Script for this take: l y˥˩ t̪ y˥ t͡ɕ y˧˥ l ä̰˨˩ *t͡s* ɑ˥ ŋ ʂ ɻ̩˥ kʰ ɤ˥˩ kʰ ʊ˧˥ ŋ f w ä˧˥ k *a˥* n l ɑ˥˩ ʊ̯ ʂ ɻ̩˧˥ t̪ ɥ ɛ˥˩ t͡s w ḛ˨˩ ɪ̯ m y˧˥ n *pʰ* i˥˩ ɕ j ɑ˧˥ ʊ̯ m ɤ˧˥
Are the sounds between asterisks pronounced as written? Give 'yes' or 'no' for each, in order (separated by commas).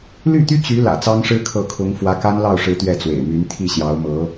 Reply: yes, yes, no